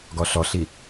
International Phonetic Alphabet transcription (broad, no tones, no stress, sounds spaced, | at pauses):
ɡ ɔ ɬ ɔ ɬ i